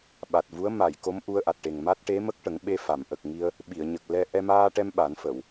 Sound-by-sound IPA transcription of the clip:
ɓa˨˩t̚vu˧˥ə̯ ma˨˩˨j ko˧˥mʔu˧ə̯ʔa˨˩t̚ʈe˨˩ŋ ma˦˥t̚ʈe˧˥mə˦˥k̚ ʈə˨˩˦ŋɓe˧fa˨˩˨m ʔə˨˩k̚ ŋi˧ə̯ | ɓi˨˩˨ə̯ɲə˨˩k̚lɛ˧ ʔɛ˧maː˧ʈɛ˧m ɓa˨˩˦nfə˨˩˨w

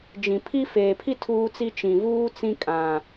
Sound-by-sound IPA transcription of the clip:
d͡ʒĩ˨pʰi˦ feː˨pʰi˦ tʰuː˦t͡si˦ t͡ʃĩ˨vuː˦ t͡sĩ˦kʼã˨

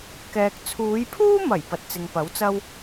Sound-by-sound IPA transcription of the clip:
kɛː˨k̚ t͡sʰuː˨˧jpʰuː˥mɐ˨˩j pɐ˨˥t̚t͡sɪ˨ŋpɐ˨˥wt͡sɐ˥w

